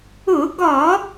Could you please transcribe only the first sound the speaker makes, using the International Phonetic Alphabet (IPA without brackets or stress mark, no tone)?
ʊ